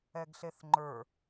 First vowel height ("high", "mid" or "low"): mid